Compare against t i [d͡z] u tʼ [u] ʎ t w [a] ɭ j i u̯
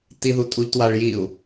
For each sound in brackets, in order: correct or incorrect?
incorrect: ð, correct, correct

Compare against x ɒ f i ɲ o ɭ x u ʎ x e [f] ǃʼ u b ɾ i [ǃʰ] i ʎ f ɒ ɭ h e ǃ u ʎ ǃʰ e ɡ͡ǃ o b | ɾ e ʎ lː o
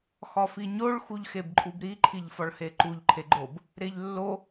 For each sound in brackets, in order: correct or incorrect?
incorrect: b, correct

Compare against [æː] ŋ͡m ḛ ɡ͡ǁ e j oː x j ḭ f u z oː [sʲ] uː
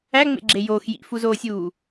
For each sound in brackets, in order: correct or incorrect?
incorrect: æ, correct

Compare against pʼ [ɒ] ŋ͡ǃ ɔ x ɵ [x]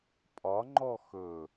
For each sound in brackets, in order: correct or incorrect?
correct, incorrect: none

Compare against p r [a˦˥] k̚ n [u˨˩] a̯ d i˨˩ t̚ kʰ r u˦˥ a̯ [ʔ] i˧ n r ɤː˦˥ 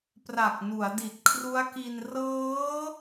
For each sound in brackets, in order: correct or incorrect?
incorrect: a˨˩, incorrect: u˩˦, incorrect: k

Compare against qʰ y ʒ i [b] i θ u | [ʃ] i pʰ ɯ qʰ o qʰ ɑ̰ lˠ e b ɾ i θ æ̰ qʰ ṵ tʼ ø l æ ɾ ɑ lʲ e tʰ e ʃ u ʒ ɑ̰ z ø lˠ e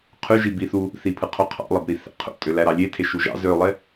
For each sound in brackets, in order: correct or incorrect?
correct, incorrect: θ

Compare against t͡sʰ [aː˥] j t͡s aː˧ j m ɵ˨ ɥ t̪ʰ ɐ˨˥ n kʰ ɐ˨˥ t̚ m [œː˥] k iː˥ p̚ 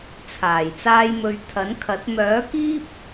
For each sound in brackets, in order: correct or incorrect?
incorrect: aː˨˩, incorrect: œː˨˥

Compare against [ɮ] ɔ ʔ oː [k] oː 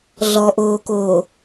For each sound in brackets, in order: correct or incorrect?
correct, correct

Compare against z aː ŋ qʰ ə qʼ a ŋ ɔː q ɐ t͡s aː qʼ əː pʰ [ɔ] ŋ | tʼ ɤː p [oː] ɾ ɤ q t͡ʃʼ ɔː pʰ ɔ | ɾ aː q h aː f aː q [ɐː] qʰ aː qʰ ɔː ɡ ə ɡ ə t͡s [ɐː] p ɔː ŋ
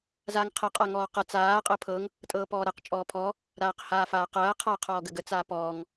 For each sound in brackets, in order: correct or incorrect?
incorrect: ɤ, incorrect: ɔː, correct, incorrect: aː

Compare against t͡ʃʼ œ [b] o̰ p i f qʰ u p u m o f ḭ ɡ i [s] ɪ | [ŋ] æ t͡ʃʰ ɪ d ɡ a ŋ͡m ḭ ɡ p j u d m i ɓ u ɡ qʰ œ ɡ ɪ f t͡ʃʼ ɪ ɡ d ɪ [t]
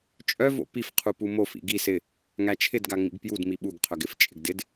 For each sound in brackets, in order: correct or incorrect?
incorrect: v, correct, correct, incorrect: d

